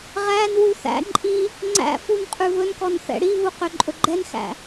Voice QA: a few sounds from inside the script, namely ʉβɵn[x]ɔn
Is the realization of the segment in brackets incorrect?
yes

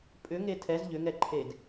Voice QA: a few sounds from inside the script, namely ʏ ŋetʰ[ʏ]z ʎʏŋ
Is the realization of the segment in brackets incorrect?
yes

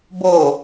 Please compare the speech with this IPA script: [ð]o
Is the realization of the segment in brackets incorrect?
yes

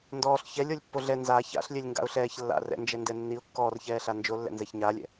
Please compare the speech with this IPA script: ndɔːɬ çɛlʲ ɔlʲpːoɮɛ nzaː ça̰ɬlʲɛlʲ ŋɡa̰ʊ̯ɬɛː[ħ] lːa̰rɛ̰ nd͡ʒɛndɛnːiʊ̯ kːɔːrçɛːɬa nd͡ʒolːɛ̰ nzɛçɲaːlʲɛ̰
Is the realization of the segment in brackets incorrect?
yes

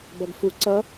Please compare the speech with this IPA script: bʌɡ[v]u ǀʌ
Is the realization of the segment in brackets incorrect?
yes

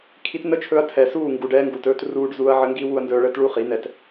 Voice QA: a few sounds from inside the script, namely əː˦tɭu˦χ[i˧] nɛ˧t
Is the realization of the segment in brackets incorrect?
yes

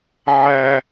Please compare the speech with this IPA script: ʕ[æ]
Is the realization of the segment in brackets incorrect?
no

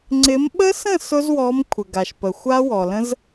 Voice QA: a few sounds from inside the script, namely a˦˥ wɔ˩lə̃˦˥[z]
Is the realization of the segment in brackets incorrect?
no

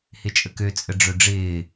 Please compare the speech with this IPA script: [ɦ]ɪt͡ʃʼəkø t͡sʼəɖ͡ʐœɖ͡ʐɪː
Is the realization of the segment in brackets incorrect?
yes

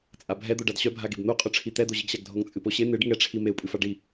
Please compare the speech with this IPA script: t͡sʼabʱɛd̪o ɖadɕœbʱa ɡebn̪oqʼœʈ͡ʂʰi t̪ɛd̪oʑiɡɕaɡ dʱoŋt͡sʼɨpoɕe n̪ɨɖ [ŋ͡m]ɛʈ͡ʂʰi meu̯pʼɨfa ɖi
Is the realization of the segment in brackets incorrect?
yes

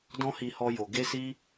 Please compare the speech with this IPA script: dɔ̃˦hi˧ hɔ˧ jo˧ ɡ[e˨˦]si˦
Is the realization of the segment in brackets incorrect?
yes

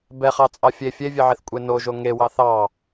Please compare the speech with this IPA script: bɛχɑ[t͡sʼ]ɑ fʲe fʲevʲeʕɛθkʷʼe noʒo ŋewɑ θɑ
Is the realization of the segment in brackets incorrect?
no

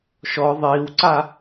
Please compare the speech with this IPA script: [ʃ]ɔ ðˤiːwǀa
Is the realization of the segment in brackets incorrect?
no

